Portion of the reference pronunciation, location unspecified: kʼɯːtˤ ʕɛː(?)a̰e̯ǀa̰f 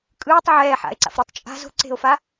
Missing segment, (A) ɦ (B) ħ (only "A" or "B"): B